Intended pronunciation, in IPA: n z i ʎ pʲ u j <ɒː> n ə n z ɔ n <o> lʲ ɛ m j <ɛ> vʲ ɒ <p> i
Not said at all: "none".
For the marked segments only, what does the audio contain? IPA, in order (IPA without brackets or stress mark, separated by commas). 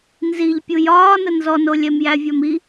ɒː, o, æ, m